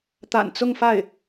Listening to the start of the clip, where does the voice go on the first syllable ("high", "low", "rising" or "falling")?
low